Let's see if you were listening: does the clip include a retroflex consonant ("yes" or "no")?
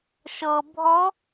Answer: no